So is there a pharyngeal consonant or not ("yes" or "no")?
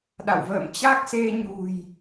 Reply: no